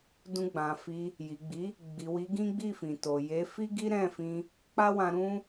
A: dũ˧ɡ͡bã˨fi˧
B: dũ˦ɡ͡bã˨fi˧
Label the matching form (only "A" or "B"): A